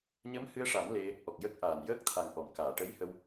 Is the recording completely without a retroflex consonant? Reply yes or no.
no